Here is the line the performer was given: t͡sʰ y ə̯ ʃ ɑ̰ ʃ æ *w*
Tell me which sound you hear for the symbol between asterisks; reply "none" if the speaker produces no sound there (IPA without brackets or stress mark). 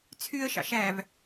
v